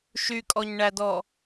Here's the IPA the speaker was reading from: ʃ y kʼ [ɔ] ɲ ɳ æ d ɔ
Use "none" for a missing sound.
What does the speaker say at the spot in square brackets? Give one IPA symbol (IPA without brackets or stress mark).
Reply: ɔ